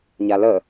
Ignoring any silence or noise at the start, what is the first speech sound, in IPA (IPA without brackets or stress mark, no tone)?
ɲ